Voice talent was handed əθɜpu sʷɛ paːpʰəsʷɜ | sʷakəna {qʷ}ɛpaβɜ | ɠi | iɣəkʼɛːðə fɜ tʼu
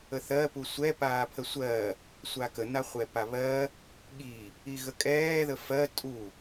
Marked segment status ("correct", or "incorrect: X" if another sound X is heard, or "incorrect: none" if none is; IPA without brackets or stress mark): incorrect: χʷ